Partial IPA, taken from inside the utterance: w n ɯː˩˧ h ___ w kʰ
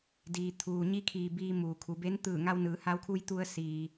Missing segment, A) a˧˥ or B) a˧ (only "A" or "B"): B